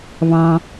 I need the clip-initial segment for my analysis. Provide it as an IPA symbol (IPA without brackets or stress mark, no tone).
β